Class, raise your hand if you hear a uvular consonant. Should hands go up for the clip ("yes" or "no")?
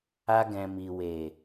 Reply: no